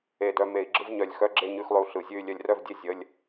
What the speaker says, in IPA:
e˧˩ d œ˧ m e˧˩˧ i̯ ɡ͡ǁ ɯ˧˥˧ v ɲ œ˧˩˧ lʲ x œ˧˥˧ ɡ͡ǁ e˥˧ ɲ ʉ˧˥˧ x lˠ ʉ˧ u̯ ɬ ɯ˧˩˧ zʲ ʉ˥˧ y̯ lʲ œ˧ lʲ r œ˥˧ v dʲ e˥˧ zʲ ə˧˥˧ lʲ

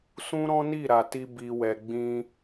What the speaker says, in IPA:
s ũ˦ ɾ ɔ̃˦ n i˦˨ ɾ a˨ t i˧ b i˧ w ɛ˧ ɡ͡b ĩ˧

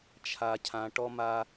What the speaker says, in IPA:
t͡ʃʰ a˨ cʰ ã˨ ʈ ɔ˦ m a˦

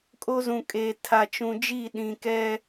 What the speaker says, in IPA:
kʼ o˦ z ũ˨ kʼ eː˨ tʰ a˨ t͡ʃ ũ˨ d͡ʒ i˦˨ ɗ ĩ˨ k ɛ˦

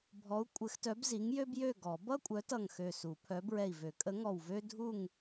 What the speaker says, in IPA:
bʱ ɔ˨˥ u̯ kʷʼ ɘ˨˥ x t œ˨˥ b z i˨˥ ŋ j ø˥ b j ø˥˨ ɡ ɔ˨˩˦ b ʌ˥ kʷʼ œ˨˥ t ʌ˧˩ ŋ x ø˧˩ s u˨˩˦ pʰ œ˨˥ b ɹ ɛ˧˩ i̯ v ø˨˩˦ kʼ ə˨˥ ŋ ɔ˧˩ w v ø˥ dʱ u˥˨ ŋ

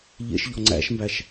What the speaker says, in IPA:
ʎ ḛ ʃ ʎ ɔ ŋ͡ǀ æ̰ ʃ m b æ ʃ

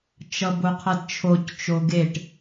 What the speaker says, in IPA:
t͡ʃ ʌ b o qʰ ʌ d t͡ʃʰ o c t͡ʃ o ɡ e ʈ

